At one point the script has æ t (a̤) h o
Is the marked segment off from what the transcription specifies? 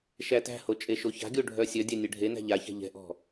yes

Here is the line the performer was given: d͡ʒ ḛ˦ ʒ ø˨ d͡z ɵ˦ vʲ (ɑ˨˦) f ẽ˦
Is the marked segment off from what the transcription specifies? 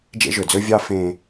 yes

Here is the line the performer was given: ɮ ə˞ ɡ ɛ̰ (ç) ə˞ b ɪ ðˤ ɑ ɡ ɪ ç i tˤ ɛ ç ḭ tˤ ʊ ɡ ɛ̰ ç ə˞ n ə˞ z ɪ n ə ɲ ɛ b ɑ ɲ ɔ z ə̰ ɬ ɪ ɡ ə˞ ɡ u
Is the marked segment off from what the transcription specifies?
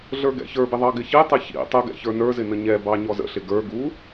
no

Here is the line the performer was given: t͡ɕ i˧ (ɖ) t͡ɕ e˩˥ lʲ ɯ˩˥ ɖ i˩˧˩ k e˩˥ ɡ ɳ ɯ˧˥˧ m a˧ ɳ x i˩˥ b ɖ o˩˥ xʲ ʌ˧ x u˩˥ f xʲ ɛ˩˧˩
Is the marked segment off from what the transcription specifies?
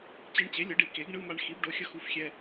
yes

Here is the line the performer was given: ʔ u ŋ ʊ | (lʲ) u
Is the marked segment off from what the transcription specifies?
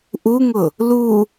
yes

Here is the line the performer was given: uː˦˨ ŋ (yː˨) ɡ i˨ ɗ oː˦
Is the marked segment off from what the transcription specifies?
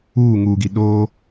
yes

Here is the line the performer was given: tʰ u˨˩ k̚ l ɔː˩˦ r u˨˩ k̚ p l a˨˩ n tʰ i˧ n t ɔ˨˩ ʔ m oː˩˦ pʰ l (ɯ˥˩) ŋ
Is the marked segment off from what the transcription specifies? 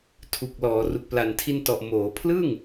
no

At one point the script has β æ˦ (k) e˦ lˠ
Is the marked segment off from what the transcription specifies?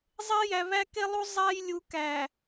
no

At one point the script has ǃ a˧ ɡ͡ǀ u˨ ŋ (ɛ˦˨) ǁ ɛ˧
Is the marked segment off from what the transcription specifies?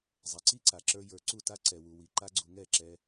no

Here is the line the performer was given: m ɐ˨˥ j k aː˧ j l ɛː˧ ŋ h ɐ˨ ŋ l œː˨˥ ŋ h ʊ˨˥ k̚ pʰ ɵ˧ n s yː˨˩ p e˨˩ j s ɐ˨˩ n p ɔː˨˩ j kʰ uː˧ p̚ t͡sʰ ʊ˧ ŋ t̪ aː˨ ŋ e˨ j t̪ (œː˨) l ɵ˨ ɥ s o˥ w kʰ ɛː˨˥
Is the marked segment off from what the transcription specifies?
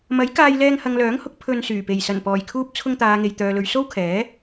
no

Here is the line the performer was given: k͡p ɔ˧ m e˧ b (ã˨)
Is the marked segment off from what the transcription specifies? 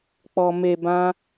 yes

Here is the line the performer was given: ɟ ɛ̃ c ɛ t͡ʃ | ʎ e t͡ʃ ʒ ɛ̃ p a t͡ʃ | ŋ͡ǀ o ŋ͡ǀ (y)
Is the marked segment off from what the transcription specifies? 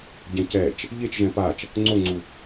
yes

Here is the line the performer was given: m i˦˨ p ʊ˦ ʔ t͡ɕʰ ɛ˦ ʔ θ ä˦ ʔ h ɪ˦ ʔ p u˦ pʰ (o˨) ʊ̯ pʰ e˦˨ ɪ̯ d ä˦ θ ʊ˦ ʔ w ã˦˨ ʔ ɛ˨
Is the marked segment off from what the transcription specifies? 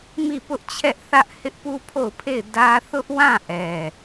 yes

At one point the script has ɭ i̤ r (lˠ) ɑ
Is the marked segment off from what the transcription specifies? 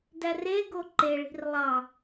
no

